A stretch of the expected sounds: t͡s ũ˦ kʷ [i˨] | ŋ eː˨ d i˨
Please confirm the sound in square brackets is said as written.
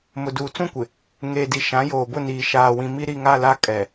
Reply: no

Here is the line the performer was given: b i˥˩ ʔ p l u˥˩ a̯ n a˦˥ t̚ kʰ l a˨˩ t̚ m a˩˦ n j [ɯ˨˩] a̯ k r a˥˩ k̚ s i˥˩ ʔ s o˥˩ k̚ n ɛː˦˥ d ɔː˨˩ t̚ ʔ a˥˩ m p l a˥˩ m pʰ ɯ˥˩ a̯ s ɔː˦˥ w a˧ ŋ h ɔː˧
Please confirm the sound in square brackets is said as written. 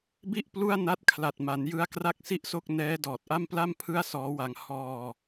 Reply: no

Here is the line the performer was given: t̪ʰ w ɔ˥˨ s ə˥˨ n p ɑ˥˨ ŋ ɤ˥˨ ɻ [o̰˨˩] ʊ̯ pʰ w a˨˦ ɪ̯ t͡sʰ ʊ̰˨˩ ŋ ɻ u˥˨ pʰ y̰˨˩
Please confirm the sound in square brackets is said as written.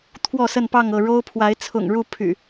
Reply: no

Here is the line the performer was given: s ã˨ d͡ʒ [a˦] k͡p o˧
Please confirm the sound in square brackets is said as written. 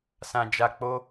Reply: no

